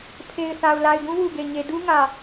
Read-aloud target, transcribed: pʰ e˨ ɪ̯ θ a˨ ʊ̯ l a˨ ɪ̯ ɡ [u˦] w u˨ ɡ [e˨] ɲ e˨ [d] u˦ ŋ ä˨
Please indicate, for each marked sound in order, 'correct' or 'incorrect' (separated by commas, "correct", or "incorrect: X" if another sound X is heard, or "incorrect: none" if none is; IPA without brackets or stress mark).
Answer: incorrect: ũ˦, correct, correct